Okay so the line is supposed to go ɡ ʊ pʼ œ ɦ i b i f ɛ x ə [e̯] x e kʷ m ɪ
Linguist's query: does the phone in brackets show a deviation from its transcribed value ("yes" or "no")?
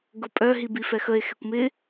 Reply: no